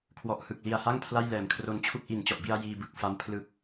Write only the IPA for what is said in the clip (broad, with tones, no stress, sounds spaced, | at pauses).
kʰ w ɔ˨˩ ʔ h ɯ˨˩ k̚ l i˨˩ a̯ h a˥˩ ŋ pʰ l a˥˩ j l ɛː˨˩ m kʰ r o˦˥ n t͡ɕʰ u˥˩ k̚ ʔ i˨˩ n t͡ɕ ɔ˨˩ ʔ b i˧ a̯ j iː˧ b ɯ˨˩ k̚ f a˦˥ m pʰ l ɯ˨˩ k̚